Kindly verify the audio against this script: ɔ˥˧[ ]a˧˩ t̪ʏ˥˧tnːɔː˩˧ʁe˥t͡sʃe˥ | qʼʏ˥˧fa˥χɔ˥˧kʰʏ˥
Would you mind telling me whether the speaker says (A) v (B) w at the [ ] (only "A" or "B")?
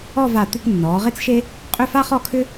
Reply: A